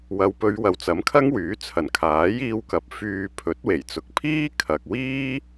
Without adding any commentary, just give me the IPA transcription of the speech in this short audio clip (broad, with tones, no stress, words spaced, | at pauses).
wɐ˨˧wpɵ˨˧ɥwɐ˨w t͡sɐ˨˥mkʰɐ˥ŋ wyː˨˥t͡sʰɐ˨˩n kʰaː˨˥jiː˧wkɐ˨p̚ fyː˧ pʰɵ˨˥t̚we˨˩jt͡sʊ˨˥k̚ pʰiː˥kʰɐ˨k̚wiː˥